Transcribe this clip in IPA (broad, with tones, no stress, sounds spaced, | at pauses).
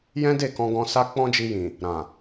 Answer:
j ɛ̃˦ d e˦˨ k ɔ̃˧ ɡ ɔ̃˧ s a˦ k͡p ɔ̃˦ d͡ʒ i˧ j ĩ˨ | ɾ ã˨